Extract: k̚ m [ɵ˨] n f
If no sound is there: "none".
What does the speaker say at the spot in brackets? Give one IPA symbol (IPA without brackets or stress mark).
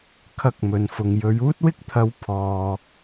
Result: ɵ˨